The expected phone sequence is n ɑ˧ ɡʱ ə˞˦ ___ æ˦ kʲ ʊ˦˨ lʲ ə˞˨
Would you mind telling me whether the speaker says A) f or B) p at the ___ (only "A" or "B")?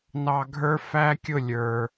A